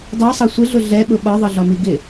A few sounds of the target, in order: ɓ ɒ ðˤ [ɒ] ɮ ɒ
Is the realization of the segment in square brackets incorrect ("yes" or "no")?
yes